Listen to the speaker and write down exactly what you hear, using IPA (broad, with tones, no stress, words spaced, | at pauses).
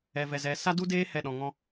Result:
ɛ˨vɛ˨zɛ˨ sa˦du˦deː˦ hɛ˦˨ɗɔ̃˨ŋɔ̃˧